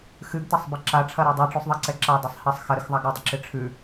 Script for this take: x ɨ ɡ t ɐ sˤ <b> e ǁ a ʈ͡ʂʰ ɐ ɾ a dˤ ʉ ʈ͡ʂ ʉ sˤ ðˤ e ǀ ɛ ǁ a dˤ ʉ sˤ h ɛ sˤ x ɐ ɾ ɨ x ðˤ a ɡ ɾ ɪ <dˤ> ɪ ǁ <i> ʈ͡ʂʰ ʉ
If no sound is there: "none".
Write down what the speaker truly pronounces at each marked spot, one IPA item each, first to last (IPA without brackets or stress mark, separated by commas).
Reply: b, dˤ, ɪ